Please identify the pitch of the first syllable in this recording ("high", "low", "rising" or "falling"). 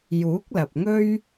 rising